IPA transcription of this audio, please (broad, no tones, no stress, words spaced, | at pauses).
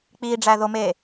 k͡piːɖ͡ʐæðomeː